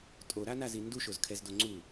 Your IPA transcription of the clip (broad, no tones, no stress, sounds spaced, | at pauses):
tʼ o ɾ a n a z i n d u ʃ o z kʰ ɛ z d o ŋ͡ǀ u